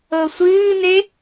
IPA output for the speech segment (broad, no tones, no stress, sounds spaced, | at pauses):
ɤ sʷ ɨː n̪ e